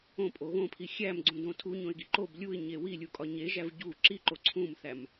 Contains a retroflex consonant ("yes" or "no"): no